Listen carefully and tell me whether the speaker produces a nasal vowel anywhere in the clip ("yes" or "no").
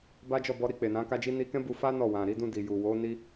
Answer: yes